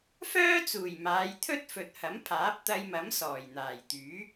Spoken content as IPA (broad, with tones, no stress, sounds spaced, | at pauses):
f œː˥ t͡s uː˨˩ j m aː˨˧ j t̪ʰ ɵ˥ t̚ f ɵ˨ t̚ h ɐ˨˥ m pʰ aː˨˥ p̚ t̪ ɐ˧ j m ɐ˨˥ m s ɔː˨˩ j n̪ aː˨˩ j t̪ yː˨˥